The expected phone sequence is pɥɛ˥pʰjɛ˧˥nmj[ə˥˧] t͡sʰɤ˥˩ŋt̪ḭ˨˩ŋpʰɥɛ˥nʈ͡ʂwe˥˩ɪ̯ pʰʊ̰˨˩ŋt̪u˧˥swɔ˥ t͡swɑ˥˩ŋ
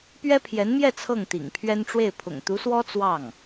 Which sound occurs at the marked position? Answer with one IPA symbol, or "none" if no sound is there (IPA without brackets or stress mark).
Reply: ɛ˥˧